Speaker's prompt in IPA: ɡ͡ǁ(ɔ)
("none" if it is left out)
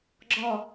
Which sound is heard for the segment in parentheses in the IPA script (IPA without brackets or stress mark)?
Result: ɔ